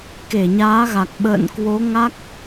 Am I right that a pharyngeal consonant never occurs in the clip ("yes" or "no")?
yes